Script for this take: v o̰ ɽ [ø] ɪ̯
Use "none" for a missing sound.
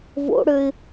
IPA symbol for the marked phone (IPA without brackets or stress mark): ø